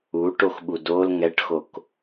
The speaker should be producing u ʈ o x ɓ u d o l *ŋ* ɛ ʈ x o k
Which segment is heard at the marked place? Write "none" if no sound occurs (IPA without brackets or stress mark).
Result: ŋ